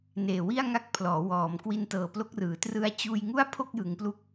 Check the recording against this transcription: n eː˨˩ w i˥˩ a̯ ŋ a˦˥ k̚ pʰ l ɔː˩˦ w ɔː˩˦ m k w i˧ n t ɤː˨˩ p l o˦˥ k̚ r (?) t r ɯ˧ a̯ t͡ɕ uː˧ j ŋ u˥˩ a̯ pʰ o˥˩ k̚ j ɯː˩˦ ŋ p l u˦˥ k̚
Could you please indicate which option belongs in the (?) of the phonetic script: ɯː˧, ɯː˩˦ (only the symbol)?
ɯː˩˦